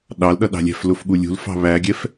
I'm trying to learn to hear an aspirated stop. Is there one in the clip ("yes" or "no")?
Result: no